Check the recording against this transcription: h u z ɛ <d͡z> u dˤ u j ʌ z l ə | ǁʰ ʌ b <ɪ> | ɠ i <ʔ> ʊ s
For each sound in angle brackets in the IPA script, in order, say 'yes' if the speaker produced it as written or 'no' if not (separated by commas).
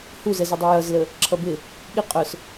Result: no, yes, no